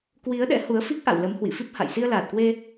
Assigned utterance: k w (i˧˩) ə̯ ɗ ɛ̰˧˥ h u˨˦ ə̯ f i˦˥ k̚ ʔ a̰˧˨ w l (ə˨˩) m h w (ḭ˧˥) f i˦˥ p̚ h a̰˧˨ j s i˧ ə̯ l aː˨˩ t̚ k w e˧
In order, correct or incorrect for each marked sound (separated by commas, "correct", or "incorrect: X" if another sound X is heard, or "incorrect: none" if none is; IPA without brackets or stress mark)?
incorrect: i˨˦, incorrect: ə˨˦, incorrect: ḭ˧˨